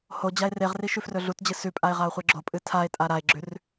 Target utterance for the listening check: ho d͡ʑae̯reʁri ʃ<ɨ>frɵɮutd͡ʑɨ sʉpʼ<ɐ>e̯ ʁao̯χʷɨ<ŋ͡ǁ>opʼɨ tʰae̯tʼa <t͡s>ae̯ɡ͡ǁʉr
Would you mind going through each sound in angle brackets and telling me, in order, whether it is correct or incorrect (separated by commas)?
incorrect, incorrect, incorrect, incorrect